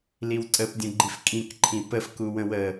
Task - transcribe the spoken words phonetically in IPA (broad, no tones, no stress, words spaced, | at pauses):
liwtʼəpdʲə̃ɡ͡ǃif kʼĩk ǃʰĩpəfkuwə̃ wə